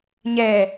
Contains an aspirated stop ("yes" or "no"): no